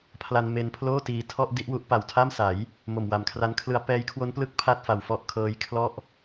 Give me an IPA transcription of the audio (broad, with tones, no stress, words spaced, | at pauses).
pʰla˧n me˧npʰloː˥˩ tiː˧ tʰɔ˥˩ʔ di˥˩ʔwu˦˥ʔ pa˨˩wtʰa˥˩msa˩˦j | mo˨˩mwa˨˩mkʰra˦˥nkʰlɯ˦˥a̯ pɛː˦˥jkʰwo˦˥nplɯ˦˥k̚ pʰa˥˩t̚ fa˨˩wfɔ˥˩ʔ kʰɤː˦˥j kʰlɔ˥˩ʔ